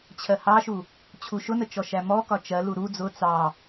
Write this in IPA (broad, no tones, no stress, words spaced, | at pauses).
t͡ɕʰɜhɑʃu | t͡ɕʰuʃʊnə t͡ʃɔʃæmɔkɒ t͡ʃɜlu ɾu d͡zʊ t͡sɑ